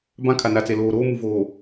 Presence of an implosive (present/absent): absent